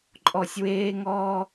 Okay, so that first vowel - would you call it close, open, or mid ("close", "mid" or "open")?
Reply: mid